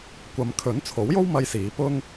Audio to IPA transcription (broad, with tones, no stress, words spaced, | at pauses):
kʷɐ˨mkʰɵ˨˥n t͡sʰo˨˥wjo˥w mɐ˥jsiː˨˥ pʊ˥ŋ